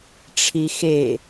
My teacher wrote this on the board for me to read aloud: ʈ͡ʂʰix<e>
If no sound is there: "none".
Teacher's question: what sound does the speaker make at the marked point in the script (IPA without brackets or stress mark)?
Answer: e